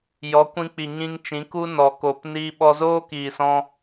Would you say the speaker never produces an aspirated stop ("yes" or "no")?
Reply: yes